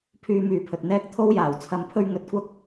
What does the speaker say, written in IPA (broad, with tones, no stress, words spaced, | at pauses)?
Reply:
pʰyː˧myː˨˧pʰɵ˨t̚ n̪ɛː˥k̚t̪ʰo˥wjaː˨˩w t͡sʰɐ˧mpʰɵ˥ɥ ŋɵ˨˥t̚kʷɐ˥k̚